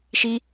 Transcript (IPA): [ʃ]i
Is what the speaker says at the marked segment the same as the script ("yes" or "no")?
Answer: yes